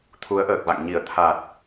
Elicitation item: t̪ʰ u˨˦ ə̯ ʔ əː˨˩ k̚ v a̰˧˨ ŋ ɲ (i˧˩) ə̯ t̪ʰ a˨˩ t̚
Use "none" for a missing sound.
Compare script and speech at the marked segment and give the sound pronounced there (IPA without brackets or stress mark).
i˧˩